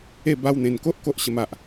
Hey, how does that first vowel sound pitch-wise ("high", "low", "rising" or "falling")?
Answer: falling